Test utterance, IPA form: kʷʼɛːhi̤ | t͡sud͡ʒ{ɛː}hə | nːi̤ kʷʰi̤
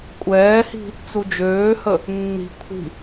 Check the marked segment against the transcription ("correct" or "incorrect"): incorrect